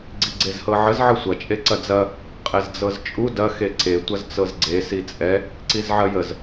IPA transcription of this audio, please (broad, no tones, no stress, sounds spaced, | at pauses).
ɡ͡ǀ i ɡ͡ǀ e z h ɤ ʕ ə z ʕ ə sʷ ɐ t͡ʃʼ e ǀ ɐ d͡z ɐ | qʼ ɛ z d͡z ɤ z t͡ʃʼ u d ɐ x e ǀ e tʷ ɐ z t͡s ɤ z ɡ͡ǀ e s i t͡sʼ ɛ | ǀ i z ʕ ɐ j ə z